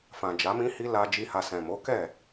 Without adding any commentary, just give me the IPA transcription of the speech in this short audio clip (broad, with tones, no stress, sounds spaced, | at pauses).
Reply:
f ã˨ d͡ʒ a˨˦ m ĩ˦ h i˧ l a˧ d͡ʒ i˧ h a˨ s ɛ̃˨ m o˨˦ k ɛ˦˨